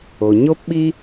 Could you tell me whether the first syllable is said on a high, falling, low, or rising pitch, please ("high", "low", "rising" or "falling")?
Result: low